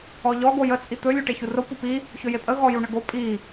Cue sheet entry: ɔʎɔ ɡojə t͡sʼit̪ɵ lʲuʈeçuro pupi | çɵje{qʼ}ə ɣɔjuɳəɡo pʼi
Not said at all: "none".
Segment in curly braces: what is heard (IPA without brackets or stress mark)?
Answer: pʼ